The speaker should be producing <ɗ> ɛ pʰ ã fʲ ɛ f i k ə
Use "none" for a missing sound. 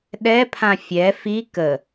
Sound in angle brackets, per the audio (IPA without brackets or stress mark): ɗ